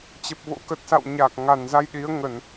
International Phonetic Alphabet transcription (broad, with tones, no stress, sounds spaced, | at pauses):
t͡ɕ ə˨˩ p̚ v o̰˧˥ k ə˨˩ t̚ s a̰˧˨ w ɲ a˨˩ k̚ ŋ a˨˩ n z a˧ j ɗ i˨˦ ə̯ ŋ ə˧˩˨ n